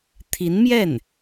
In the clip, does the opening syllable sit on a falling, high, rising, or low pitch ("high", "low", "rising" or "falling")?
rising